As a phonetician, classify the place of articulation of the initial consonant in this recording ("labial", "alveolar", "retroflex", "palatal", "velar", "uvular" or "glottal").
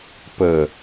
labial